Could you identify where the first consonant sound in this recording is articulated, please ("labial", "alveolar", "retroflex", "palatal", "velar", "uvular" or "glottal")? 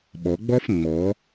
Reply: labial